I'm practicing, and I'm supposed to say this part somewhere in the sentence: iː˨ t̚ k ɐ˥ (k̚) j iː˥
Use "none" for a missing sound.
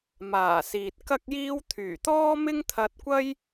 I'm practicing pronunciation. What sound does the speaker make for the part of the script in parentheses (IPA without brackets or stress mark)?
k̚